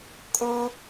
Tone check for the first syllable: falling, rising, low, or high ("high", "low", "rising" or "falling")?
high